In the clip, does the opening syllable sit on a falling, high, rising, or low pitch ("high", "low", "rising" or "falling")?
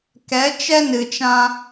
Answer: rising